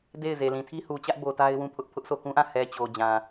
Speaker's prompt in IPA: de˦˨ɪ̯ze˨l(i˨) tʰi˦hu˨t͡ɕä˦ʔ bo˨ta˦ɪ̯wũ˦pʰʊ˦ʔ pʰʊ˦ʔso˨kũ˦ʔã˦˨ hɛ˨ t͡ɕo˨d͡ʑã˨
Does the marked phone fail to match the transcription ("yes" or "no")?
yes